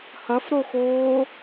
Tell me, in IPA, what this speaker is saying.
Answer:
hɐfɾoxoː

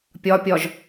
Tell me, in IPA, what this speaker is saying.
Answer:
pʲɒpʲɒʒ

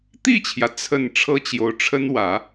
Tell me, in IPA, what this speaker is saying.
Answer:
t̪i˥˩t͡ɕʰjä˩ t͡sʰə˥˩n ʈ͡ʂʰɤ˥t͡ɕjo˧˥ʊ̯ʈ͡ʂʰə˥n wä˨˩˦

